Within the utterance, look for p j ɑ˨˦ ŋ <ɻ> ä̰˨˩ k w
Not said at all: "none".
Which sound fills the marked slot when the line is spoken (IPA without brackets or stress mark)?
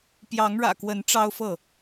ɻ